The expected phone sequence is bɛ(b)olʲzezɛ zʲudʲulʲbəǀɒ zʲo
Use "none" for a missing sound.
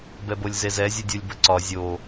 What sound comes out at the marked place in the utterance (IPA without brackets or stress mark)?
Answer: b